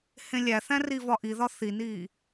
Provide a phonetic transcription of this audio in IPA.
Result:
h ẽ lʲ æ θ æ̃ r i v ɒ ʔ i ð ɒ θ i n iː

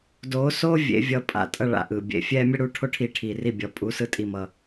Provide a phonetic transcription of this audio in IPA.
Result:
d oː˨˦ s oː˦ vʲ ḛ˨˦ vʲ ʌ˧˩ pʼ a̰˧˩ tʼ ʌ˧˩ ɭ a̰˧˩ ʔ ɯː˩ bʲ ḛ˩ fʲ ɛː˦ mʲ ʌ˦ ɽ uː˦ ʈʰ o˦ ʈʰ iː˨˦ ʈʰ iː˩ r i˧˩ bʲ ʌ˩ pʼ u˨˦ s ɯ˦ tʼ i˧˩ m ʌ˩

